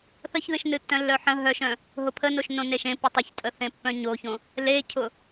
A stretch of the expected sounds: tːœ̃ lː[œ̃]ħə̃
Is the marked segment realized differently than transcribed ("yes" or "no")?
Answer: yes